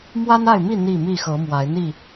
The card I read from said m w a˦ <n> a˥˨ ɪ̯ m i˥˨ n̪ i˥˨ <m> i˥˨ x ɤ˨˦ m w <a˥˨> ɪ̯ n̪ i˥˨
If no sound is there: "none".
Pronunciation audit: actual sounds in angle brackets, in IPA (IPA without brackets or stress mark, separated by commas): n, m, a˨˦